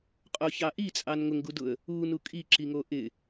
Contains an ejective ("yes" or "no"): yes